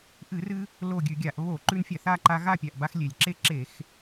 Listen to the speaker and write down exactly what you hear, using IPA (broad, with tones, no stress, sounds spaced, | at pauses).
ʔ ɨ˧˩˧ r ɨ˧ | l o˥˨ ɡʲ ʉ˧˩˧ ɡʲ a˧˩˧ ʔ β o˧˩˧ ǃ ʉ˧ n fʲ a˧˩˧ θ a˥˨ ǃ a˧ ɣ a˥˨ pʲ a˩ ʔ b a˧ x lʲ e˩ lʲ ǁ e˥˨ ǁ e˧˩˧ x